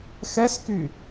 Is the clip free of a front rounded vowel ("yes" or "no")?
no